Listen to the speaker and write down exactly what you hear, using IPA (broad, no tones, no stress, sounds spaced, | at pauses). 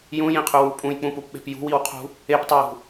j ũ j ĩ qʰ ʉ w u pʼ ũ j k͡p ũ p u p ɓ e̤ p j ṳ w i w qʰ ṳ | e p tˤ e j ṳ